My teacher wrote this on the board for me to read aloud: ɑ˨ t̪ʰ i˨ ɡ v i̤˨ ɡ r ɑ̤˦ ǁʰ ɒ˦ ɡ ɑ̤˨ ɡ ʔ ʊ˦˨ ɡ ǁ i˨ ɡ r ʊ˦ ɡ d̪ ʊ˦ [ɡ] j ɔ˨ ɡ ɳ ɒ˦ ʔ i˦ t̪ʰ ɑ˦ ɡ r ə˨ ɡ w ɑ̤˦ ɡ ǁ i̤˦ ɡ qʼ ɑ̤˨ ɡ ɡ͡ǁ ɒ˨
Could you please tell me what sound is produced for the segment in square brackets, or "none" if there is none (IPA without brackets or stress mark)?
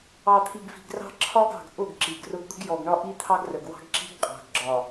ɡ